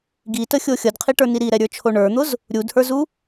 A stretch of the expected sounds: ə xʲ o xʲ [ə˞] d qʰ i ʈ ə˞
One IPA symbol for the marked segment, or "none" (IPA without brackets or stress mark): ʌ